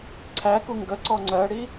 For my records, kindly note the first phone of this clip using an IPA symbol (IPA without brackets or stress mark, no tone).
ǀʰ